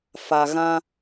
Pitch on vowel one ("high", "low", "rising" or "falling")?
low